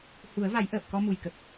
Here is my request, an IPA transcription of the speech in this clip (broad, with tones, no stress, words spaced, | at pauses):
hu˨˩˦ə̯va˨˩˦j ʔəː˨˩p̚kɔ˧mu˨˩jkə˨˩k̚